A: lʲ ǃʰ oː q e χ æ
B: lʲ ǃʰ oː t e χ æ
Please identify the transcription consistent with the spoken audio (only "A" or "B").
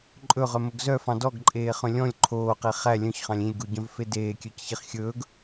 A